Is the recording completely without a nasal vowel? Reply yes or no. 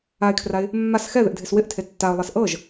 yes